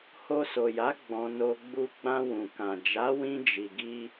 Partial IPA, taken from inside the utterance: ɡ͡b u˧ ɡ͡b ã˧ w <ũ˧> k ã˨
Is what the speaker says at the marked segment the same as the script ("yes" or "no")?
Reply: no